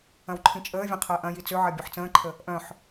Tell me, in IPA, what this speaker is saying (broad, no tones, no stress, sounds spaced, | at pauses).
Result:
ɐ̃ w ǃʰ ĩ t͡ʃʼ əː vʲ ɐ̃ qʰ əː ʔ ɐ̃ j i t͡s ø ʕ ɐ bʲ u ħ t͡s ə̃ː ǃʰ ə | ʔ œ̃ ħ